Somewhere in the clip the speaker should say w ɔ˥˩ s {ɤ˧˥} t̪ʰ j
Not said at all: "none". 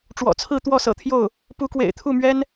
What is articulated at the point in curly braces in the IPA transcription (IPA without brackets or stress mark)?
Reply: ɤ̰˨˩